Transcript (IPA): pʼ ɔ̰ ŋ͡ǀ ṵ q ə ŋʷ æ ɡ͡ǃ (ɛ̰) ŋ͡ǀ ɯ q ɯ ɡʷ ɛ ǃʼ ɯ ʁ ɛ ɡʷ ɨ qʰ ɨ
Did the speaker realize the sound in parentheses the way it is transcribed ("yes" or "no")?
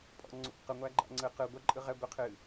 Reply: no